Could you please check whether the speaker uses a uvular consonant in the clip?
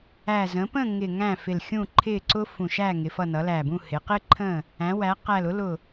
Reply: yes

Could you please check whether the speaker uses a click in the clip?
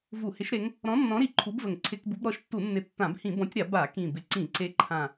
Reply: yes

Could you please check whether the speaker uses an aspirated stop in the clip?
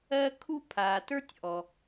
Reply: yes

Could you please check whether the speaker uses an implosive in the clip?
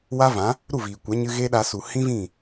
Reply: yes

